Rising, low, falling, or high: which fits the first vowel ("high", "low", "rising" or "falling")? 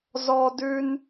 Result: high